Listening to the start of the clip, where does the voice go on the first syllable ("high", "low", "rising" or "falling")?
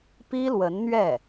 high